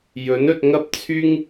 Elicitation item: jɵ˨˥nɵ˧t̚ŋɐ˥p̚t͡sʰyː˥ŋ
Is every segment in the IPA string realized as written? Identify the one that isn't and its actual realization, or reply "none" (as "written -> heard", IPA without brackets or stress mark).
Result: none